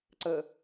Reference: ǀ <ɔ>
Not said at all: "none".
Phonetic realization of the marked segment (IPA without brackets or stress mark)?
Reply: ə